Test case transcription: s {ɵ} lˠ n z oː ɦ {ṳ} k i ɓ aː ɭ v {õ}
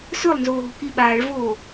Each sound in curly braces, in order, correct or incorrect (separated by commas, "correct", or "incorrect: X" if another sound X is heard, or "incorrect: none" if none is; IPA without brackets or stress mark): correct, correct, incorrect: o